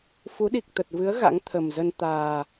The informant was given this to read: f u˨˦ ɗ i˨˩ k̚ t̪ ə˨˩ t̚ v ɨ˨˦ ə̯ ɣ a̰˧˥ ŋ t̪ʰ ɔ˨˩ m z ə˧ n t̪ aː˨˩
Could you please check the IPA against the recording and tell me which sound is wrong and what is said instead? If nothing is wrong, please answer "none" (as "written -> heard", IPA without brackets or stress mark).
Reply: ɔ˨˩ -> ə˨˩